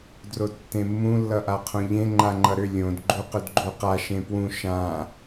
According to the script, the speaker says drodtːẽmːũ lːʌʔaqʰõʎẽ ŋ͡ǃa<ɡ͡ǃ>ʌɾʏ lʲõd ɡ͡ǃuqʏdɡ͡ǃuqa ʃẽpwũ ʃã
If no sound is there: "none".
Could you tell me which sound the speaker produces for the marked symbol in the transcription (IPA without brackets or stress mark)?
ŋ͡ǃ